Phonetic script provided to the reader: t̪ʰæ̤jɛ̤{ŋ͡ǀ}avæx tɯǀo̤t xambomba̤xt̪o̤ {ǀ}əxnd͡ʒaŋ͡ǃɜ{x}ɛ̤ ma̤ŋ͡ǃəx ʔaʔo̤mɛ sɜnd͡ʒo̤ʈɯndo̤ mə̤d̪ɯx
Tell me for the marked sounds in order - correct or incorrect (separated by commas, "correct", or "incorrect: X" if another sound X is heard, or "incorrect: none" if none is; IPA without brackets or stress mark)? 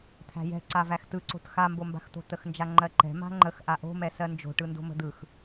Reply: incorrect: ǀ, incorrect: t̪, incorrect: ǃ